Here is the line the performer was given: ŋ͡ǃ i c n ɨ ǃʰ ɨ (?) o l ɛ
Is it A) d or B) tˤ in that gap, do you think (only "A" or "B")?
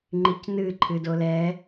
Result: A